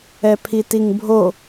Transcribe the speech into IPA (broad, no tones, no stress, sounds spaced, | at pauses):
ɛ pʰ i t i ŋ bʱ o